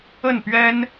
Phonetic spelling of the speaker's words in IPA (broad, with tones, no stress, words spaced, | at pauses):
ə˥˩npɥɛ˥n